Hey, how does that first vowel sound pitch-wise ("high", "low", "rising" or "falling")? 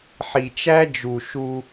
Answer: low